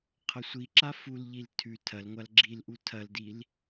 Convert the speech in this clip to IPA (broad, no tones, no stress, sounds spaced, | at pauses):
qʰ ɐ sʷ i ǁ a f u l ʎ i l tʰ ʉ tʰ ɐ l ŋʷ a l ɡ͡ǁ i l ʔ u tʰ ɐ l d i l